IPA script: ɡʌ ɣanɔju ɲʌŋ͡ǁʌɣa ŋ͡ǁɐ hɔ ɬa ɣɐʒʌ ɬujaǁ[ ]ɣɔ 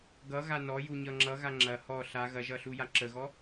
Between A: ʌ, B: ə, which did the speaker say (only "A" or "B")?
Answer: B